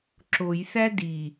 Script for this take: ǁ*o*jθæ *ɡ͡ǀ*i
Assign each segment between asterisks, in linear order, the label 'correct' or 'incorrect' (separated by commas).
correct, incorrect